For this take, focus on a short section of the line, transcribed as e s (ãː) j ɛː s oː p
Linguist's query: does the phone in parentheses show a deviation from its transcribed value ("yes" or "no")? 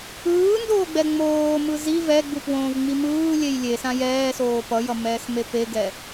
yes